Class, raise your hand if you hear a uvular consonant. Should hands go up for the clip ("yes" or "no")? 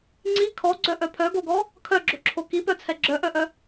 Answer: no